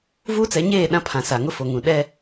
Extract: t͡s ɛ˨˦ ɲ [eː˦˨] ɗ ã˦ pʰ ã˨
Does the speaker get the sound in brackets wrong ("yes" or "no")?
no